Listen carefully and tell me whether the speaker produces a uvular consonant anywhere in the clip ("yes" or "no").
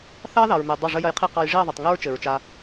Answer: yes